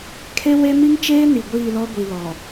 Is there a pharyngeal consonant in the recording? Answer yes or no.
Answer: no